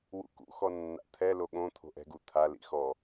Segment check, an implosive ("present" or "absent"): present